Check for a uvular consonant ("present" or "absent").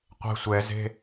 present